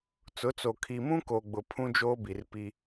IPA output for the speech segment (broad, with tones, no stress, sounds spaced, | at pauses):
t͡s ʊ˨˦ t͡s o˨ kʰ i˨ m ũ˦ k o˨ ɡ͡b ʊ˨ pʰ ũ˦ d͡ʒ oː˦ b i˨ r p i˦